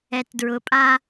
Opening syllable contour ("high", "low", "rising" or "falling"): low